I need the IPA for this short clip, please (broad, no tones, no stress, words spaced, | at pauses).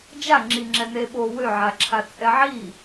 d͡ʒaŋ͡ǁiŋ͡ǁɛ neɓo wøʕaǁʰa t͡sʼɛʕi